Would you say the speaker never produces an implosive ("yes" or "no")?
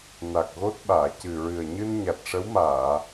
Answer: no